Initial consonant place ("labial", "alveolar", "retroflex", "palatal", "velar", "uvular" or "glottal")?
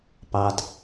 labial